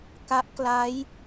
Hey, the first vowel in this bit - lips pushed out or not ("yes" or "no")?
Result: no